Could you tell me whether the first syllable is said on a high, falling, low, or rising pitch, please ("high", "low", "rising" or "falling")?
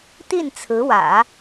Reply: falling